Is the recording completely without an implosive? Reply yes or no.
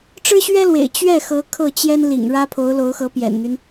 yes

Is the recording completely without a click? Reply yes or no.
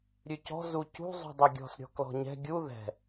yes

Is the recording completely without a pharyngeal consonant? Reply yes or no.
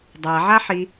no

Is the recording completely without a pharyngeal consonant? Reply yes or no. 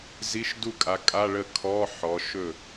no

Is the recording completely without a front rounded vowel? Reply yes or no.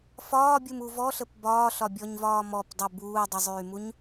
no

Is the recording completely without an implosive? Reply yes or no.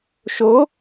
yes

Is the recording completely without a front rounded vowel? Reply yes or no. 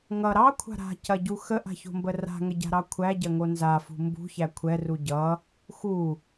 yes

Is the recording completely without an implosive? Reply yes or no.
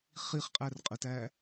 yes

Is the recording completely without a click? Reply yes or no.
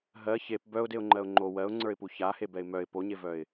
no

